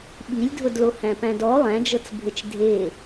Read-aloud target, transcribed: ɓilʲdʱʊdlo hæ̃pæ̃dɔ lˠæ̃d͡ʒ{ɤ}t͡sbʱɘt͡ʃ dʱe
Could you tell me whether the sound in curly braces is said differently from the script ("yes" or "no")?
no